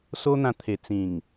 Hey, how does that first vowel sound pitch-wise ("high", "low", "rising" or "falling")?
high